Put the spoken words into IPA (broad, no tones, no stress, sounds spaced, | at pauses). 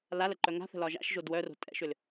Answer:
l a l ə ǃ œ ŋ a̤ θ ə̤ l ɒ ʒ a̰ ʃ ʒ o d w œ r o̤ tʼ ɛ̰ ʃ ʏ l